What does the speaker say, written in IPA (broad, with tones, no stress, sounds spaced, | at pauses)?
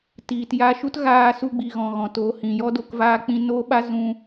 t iː˨ t j a˧ ʃ u˦ t ɣ aː˧ s u˧ ɡ͡b i˨ ɣ ɔ̃˨ ɣ ɔ̃˨ t o˨˦ h ĩ˨ j ɔ˦ d o˧ k v aː˧ k͡p ĩ˧ n o˧ ɓ a˧ z ũ˧